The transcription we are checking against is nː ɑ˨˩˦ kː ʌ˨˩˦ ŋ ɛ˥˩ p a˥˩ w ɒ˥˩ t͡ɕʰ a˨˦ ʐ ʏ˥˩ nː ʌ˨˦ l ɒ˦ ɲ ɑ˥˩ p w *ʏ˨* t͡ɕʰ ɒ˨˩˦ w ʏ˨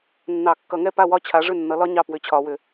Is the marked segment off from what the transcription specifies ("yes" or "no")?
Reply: yes